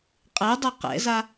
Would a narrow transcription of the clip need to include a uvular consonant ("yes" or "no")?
yes